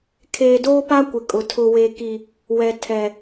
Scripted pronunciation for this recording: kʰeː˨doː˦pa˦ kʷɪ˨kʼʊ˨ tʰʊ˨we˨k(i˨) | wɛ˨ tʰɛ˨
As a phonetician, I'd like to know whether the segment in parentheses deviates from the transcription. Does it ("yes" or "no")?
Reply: no